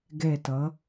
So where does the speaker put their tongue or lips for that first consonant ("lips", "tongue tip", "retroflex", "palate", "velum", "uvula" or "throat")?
velum